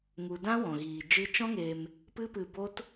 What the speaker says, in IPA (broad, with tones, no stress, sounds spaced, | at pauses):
ŋ u˨ d ã˦ w ɔ̃˨ ɣ iː˨ d͡ʒ ɨ˧ t͡ʃ ɔ̃˦ ŋ eː˧ m | p ɨ˦ p ɨ˧ b o˦ t